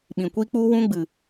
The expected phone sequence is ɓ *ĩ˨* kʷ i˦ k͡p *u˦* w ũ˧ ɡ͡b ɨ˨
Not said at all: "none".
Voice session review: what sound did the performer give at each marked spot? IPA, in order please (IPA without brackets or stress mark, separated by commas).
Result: ĩ˨, u˦